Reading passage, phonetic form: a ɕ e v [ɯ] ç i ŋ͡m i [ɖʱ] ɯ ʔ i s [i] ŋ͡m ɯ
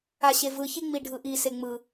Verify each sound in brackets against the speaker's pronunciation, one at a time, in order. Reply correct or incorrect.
correct, correct, incorrect: e

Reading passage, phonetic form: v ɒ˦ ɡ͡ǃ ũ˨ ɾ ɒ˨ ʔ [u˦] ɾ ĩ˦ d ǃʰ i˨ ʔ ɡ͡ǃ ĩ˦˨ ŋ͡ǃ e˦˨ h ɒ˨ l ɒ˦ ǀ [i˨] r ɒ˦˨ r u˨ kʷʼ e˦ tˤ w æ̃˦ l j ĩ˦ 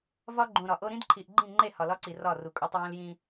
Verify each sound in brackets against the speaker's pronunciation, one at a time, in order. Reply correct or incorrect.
incorrect: o˦, correct

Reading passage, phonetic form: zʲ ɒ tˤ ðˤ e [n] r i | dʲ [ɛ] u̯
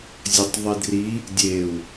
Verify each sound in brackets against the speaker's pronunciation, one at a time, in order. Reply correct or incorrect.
incorrect: d, incorrect: e

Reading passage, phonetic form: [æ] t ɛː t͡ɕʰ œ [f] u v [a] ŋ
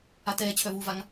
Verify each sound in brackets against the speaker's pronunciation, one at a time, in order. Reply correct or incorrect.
incorrect: a, incorrect: v, correct

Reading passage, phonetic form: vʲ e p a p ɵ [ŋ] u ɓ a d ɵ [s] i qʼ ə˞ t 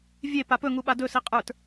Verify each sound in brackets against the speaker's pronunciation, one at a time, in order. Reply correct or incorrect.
correct, correct

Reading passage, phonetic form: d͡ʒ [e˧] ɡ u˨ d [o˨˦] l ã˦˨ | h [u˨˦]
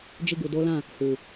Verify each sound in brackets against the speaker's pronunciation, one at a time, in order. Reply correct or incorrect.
incorrect: i˧, correct, incorrect: u˨

